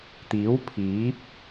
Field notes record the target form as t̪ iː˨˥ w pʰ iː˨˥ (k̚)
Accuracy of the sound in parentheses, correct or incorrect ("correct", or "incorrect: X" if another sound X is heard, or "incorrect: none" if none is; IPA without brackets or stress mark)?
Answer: incorrect: p̚